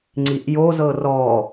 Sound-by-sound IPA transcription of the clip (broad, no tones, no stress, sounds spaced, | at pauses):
ŋ͡ǀ i ʔ j o z ɤ r ɔ